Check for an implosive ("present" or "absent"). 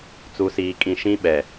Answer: present